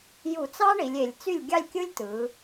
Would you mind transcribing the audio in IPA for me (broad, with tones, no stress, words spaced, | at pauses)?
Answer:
ju˧˩˧t͡sɑ˥ɳi˩˧lʲ e˩˧lʲ t͡sy˥˩lʲɡʲɑ˥˧lʲkʲɯ˥lʲ tɯ˩˧